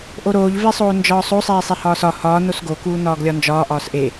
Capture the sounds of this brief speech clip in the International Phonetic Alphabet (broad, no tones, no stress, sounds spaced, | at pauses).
ʔ o ɾ oː ʎ v e sˤ oː n d͡ʒ ɒː sˤ o sˤ eː sˤ e h ɒː s ɒ h ɒː n o s ɡ o k uː n ɒː ɡ lʲ ɒ n d͡ʒ ɒː ʔ ɒː s ʔ e